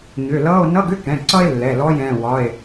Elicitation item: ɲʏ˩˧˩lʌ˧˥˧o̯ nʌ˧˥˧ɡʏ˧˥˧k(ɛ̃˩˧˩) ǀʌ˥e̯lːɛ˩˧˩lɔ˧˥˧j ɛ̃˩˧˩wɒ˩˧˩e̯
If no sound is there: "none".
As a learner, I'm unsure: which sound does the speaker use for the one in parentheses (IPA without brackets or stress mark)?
ɛ̃˩˧˩